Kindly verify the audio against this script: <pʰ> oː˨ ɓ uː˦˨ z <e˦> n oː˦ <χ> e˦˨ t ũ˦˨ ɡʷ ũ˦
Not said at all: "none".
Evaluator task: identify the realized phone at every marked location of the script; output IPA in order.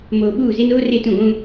m, e˦, r

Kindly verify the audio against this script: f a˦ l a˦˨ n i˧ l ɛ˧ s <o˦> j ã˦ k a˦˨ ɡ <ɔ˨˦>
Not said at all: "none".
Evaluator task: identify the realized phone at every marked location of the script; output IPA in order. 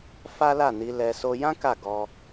o˦, ɔ˧

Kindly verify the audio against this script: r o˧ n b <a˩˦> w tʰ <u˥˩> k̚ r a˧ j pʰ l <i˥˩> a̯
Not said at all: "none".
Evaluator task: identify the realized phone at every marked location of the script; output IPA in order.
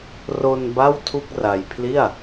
a˥˩, u˥˩, i˥˩

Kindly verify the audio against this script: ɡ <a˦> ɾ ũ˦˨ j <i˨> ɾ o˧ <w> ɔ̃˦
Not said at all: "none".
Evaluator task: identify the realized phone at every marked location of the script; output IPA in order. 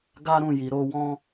a˦, i˨, w

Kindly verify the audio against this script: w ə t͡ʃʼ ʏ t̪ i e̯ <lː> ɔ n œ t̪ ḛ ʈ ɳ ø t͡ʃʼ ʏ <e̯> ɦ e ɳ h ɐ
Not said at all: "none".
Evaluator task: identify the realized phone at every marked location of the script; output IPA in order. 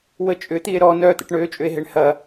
ɾ, e̯

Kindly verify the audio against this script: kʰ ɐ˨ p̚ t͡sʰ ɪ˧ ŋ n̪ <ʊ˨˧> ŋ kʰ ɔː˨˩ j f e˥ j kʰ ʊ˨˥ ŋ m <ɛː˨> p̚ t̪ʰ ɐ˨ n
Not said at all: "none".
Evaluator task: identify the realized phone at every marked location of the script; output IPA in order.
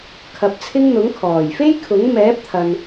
ʊ˨˥, ɛː˨˥

